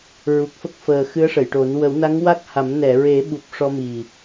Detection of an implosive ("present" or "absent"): present